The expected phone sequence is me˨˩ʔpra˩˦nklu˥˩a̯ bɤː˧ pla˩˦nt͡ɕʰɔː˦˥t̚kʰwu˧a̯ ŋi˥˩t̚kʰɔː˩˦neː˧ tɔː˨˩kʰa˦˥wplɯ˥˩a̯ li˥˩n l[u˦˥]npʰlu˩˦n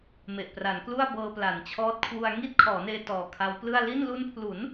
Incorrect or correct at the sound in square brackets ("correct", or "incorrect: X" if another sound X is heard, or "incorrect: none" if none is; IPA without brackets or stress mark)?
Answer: incorrect: u˧